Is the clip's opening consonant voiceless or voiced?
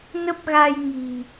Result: voiced